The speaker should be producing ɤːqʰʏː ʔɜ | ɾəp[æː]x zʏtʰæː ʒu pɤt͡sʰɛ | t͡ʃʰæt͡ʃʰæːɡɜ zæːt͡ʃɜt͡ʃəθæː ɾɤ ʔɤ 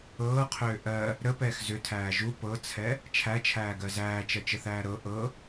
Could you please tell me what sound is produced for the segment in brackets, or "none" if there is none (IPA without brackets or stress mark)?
ɛː